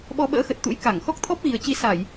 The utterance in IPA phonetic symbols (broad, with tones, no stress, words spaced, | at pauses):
ɓɔ˧ɓə̰ː˧˥xə˨˩t̚t̪ṵ˧˥j ka˧˩ŋ xɔ˦˥k̚t̪ʰɔ˦˥p̚ɣi˨˩ə̯t͡ɕi˨˦ sa˧˩˨j